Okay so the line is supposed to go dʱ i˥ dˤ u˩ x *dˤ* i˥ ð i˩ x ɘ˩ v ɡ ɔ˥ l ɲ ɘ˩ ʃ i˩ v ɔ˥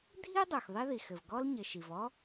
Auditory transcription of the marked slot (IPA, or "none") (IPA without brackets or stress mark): ðˤ